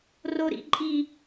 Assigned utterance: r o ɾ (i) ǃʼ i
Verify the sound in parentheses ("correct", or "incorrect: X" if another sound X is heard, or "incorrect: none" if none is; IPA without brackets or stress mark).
incorrect: ḭ